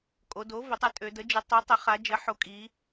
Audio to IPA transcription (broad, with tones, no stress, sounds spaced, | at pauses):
kʼ o˩˧ d o˩˥ v ə˩˥ tˤ ɯ˩˧ tʼ ø˩˧ d ə˩˥ d͡ʒ ɯ˩˥ tˤ ø˩˥ tˤ ə˩˧ χ a˩˧ d͡ʒ ə˩˥ ħ o˩˥ kʼ i˩˧